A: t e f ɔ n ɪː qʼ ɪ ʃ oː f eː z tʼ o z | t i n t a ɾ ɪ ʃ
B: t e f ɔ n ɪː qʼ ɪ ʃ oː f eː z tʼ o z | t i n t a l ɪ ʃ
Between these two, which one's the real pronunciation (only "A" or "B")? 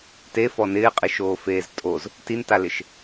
B